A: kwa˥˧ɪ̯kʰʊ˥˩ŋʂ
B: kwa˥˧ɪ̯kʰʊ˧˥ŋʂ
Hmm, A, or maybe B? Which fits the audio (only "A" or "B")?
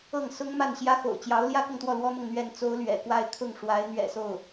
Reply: A